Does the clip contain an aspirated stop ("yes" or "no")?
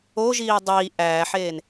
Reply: no